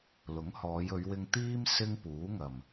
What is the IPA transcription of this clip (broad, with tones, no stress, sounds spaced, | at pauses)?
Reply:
l ʊ˨˥ ŋ h ɔː˨˧ j ɵ˨˧ ɥ w ɪ˧ ŋ t̪ iː˥ m s ɪ˥ ŋ p uː˨˥ ŋ ɐ˨˩ m